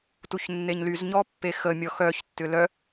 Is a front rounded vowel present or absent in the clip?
present